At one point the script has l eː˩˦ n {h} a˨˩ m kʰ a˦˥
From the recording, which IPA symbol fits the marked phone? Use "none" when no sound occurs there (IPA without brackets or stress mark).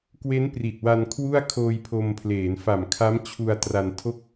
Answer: f